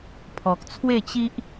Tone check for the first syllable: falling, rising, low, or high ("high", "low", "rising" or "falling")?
low